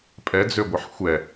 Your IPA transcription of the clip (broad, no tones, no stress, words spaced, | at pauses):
pʼɛd͡zøɡʷəħ xʷɛ